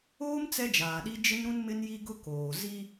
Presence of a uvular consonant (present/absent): absent